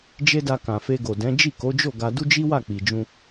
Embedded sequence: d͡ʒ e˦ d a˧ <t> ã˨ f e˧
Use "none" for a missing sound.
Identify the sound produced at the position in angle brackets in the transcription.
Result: k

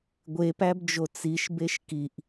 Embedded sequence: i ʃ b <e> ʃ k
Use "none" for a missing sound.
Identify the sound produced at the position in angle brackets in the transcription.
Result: e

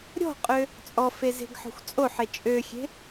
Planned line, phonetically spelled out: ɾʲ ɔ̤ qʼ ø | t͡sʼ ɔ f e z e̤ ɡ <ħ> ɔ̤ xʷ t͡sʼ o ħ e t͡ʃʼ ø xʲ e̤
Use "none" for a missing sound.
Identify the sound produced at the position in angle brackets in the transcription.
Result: ħ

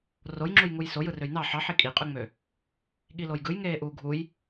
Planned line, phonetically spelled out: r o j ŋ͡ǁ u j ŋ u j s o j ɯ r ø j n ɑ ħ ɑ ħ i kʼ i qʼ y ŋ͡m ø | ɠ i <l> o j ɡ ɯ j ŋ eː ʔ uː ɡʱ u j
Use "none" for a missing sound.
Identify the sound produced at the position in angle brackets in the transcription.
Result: l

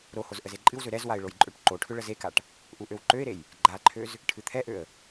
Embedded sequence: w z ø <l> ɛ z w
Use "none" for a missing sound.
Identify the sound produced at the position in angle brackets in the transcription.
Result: ɾ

